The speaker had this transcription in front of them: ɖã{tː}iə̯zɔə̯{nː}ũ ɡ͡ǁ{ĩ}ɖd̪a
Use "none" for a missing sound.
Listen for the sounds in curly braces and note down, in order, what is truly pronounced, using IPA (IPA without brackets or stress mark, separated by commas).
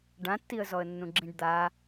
tː, nː, ĩ